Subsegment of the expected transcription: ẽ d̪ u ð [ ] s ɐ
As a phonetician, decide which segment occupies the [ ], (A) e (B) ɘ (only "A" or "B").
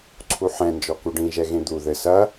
B